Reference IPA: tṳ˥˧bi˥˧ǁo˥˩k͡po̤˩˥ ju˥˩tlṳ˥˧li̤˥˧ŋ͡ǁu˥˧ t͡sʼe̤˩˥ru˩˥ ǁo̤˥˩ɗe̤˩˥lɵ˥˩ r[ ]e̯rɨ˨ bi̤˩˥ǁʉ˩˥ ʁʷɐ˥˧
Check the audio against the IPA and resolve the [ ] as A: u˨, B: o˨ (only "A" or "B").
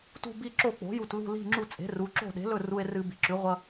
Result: A